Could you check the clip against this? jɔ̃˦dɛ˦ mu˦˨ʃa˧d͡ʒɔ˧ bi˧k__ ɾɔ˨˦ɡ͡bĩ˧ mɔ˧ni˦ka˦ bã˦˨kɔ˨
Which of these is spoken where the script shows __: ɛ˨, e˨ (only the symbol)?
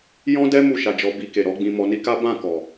e˨